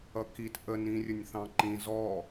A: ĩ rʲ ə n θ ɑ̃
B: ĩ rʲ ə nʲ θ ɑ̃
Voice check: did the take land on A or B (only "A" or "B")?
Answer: B